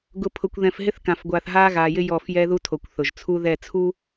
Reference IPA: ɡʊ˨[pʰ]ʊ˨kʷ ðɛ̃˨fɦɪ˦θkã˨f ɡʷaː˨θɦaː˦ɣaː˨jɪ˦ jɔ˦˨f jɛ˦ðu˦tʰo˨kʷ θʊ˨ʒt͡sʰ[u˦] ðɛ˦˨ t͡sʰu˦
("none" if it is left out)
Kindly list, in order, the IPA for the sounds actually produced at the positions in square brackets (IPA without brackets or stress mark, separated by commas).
pʰ, u˦